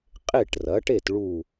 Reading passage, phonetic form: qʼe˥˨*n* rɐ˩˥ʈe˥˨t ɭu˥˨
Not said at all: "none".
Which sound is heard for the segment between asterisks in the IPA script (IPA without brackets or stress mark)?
ʈ